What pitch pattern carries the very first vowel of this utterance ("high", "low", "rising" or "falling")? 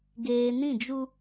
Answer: low